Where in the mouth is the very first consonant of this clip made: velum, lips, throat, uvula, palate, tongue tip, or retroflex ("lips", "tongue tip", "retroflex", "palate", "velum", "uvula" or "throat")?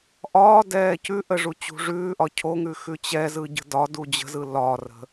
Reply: throat